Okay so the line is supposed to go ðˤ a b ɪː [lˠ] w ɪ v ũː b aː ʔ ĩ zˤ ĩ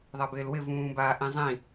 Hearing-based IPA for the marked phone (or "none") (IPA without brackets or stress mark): l